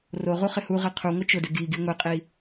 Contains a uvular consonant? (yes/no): yes